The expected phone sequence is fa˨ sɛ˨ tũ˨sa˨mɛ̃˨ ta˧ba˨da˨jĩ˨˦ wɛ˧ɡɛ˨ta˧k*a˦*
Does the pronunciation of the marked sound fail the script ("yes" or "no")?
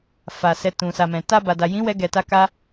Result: yes